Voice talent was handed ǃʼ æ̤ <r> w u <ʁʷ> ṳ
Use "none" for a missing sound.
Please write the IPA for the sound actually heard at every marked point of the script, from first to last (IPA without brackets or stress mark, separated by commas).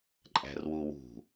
r, w